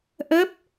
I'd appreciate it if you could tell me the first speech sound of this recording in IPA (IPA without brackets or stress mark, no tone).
ʔ